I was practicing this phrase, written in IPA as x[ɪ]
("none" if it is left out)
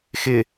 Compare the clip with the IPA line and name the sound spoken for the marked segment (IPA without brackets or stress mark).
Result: ɪ